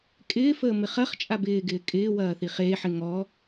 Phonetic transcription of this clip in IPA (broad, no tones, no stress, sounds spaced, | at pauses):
kʼ ɪː f əː m ɪ χ ɐ χ t͡ʃʼ a b ɪː ɡ ɪː kʼ ɪː w ɐː θ i χ eː ħ ɪ ŋ ɔ